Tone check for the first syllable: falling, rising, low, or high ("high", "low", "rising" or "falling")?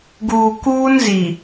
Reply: low